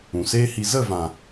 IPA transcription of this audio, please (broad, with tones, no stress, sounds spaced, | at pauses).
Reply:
ũ˨ s eː˦ h i˧ z ə˦˨ v ã˨